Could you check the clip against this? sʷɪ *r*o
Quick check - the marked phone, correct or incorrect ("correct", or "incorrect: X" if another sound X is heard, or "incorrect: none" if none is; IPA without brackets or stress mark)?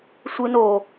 incorrect: n